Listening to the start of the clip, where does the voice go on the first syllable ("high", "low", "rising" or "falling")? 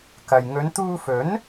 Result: low